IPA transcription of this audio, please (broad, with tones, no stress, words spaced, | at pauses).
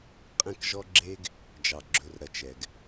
qʼɛ̃˦kʒɔ˦ɡ͡ǁe˦ɡ | d͡ʒɑ˨ ɡ͡ǁɵ˧r ɾɐ˧t͡ʃɛ˨ɡ